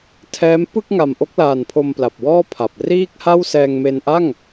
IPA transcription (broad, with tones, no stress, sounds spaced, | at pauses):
tʰ ɛː˦˥ m p ɯ˥˩ k̚ ŋ a˨˩ m ʔ o˦˥ k̚ l aː˨˩ n pʰ o˧ m p l a˨˩ p̚ w ɔː˥˩ pʰ a˨˩ p̚ r iː˥˩ k̚ h a˥˩ w s ɛː˧ ŋ m e˧ n ʔ a˥˩ ŋ